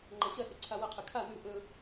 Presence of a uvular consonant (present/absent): present